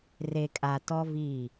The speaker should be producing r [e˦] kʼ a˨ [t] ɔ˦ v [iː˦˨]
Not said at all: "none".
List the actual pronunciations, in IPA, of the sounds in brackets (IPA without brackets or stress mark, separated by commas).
e˨, t, iː˦˨